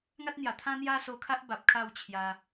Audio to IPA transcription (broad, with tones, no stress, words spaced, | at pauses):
ŋa˦t̚n̪ja˨˩t̪ʰã˦ n̪ja˦so˧kʰa˦ʔba˨p̚ kʰa˥˧wt͡ɕʰja˧